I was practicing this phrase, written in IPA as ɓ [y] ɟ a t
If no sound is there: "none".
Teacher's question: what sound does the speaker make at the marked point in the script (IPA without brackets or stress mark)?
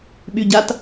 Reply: y